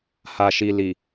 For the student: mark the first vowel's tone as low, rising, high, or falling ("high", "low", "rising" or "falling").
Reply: low